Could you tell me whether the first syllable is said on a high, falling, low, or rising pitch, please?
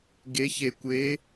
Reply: rising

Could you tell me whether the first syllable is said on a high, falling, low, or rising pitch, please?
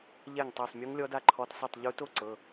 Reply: falling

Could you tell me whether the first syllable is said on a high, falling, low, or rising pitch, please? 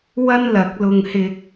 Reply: high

